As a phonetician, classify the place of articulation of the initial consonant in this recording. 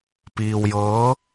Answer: labial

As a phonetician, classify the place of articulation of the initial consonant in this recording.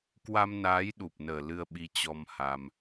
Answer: velar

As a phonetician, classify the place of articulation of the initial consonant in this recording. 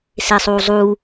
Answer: alveolar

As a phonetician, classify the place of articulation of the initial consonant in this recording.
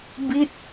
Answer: labial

